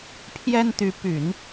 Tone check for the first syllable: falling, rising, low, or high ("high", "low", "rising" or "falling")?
high